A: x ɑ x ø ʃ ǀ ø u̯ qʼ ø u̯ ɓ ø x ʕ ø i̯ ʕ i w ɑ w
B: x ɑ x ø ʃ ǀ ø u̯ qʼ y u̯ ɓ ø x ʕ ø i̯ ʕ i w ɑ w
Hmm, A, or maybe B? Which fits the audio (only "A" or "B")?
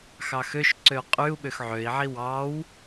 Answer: B